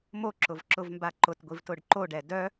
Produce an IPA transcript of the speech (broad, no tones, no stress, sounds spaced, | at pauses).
m o ǁ ʊ v ǁ ʊ v m b a ǃ ʊ t ɡʷ i v t ʊ ɖ ǃ o ɖ ɛ d œ